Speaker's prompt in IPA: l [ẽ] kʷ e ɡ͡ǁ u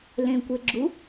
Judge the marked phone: correct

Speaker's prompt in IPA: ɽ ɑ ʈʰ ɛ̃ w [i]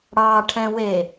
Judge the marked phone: incorrect: e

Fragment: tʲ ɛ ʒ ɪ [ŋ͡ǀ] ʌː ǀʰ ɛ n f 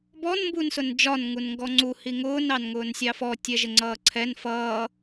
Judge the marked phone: correct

